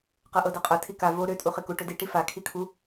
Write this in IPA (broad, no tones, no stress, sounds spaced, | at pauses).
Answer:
q ɤ ʔ ɤ d ɤ qʼ ɤ tʰ i k a v o ɾ ø tʼ u χ i k u ʈ ɵ d i ʈ i f a kʰ i kʰ u